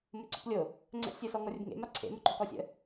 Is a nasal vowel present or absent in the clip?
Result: absent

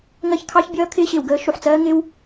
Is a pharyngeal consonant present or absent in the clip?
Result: present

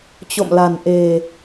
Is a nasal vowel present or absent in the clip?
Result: absent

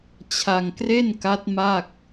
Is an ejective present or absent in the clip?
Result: absent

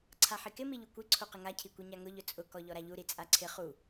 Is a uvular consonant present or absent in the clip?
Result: present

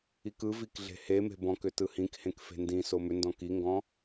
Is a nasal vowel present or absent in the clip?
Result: present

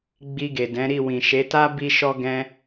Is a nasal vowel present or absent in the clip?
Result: present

